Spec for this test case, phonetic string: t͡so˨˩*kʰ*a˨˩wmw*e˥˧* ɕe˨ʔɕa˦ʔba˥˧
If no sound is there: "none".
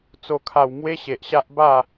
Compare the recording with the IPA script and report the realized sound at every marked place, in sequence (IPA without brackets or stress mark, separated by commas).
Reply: kʰ, e˧